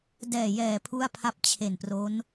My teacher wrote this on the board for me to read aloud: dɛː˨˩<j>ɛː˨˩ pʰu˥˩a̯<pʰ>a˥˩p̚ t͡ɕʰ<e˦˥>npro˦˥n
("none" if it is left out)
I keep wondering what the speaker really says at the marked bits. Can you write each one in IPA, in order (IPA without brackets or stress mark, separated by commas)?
j, pʰ, e˨˩